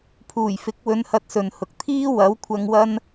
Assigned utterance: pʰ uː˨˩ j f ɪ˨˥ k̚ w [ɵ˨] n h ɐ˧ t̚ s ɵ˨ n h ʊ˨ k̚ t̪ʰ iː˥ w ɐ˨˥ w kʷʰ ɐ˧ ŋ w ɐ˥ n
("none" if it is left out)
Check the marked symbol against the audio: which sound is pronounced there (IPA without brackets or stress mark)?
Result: ɵ˨˧